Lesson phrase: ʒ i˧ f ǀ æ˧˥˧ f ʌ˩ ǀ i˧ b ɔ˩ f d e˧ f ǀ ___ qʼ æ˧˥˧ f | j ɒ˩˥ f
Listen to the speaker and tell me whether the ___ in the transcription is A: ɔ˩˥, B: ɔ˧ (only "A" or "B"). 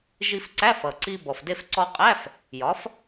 B